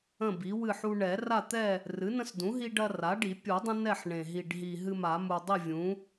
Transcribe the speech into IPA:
ə̃˥˨bi˩˥ wɨ˥˨ħu˦ ɳɛ˨˩˦ra˥˨t̪ɛ˥˨ | rɨ˩˥nə̃˦sdũ˩˥ɦi˦ ɖɐ˦ra˩˥ɖi˨˩˦ pʲu˨˩˦dˤə̃˦ nɛ˥˨ħɳẽ˨˩ ɦi˨˩ɖɦi˨˩ ɦɨ˦ma˨˩˦mu˨˩ dˤi˥˨vʲũ˩˥

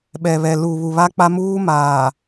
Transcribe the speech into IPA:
ɓɛ˨βɛ˨ lu˨βu˨βa˦k͡pa˦ muː˦maː˨

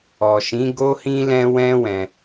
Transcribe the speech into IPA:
ɔ˨ʃĩ˨˦ ɡo˦hĩ˦lɛ̃˦ wɛ̃˦ wɛ̃˧

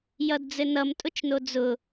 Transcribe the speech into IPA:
jʌdd͡zɘnʌm tʼʊt͡ʃnod͡zʊ

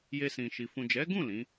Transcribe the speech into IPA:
je˧sĩ˨ʃi˨ fũ˨d͡ʒɛ˨˦ɡũ˦˨ lĩ˨˦

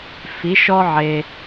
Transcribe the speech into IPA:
fi˨˥ʃɔ˥ʕe˧

